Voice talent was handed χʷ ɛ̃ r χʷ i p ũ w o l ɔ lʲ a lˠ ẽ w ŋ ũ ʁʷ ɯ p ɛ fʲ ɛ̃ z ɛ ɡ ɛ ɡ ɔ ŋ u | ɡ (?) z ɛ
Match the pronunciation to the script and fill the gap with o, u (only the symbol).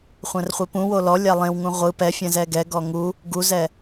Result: u